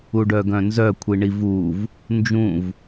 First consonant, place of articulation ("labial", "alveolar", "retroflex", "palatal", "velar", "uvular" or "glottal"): retroflex